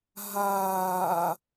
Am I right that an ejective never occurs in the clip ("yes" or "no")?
yes